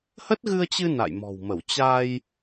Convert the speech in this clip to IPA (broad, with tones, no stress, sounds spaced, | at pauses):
h ə˦˥ t̚ ɣ ɨ˧ ə̯ t͡ɕ ɨ˧ n a̰˧˨ j m ɔ̤˨˩ w m ə˧˩ w t͡ɕ a˧ j